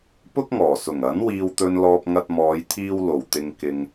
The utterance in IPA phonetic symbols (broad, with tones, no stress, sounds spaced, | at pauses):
p ʊ˥ k̚ ŋ ɔː˨˩ s ʊ˨˩ ŋ ɐ˨˥ n w iː˨ w t̪ ɵ˨ n l ɔː˨ p̚ ŋ ɐ˧ t̚ m ɔː˨˧ j t̪ʰ iː˧ w l o˨˩ w t̪ ɪ˨ ŋ k ɪ˨ ŋ